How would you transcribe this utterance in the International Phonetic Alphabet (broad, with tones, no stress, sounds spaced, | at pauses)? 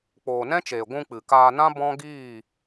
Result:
k͡p oː˨ n ɛ̃˦ t͡ʃ eː˨ ɡʷ ũ˧ k͡p ɨ˨ k aː˧ n ã˦ b ɔ̃˦ ɡ iː˦˨